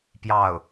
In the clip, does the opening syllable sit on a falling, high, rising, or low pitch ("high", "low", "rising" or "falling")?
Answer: falling